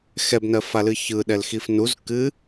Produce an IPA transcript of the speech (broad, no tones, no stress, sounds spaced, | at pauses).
x ɛ b n ɜ f a l ɨ ç ɯ ɗ ɛ l x i f n u z k ɨ